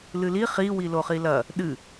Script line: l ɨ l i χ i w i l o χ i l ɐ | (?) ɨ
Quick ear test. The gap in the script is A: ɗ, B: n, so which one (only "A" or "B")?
A